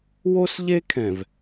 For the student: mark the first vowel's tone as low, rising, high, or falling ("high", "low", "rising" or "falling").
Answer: high